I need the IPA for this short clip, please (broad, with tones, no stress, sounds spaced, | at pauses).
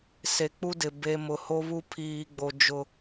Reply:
s e˨ k͡p u˦ d ɪ˨ b e˨ m ʊ˨ h o˦ β u˦ pʰ iː˨ ɡ͡b o˨ d͡ʒ ʊ˦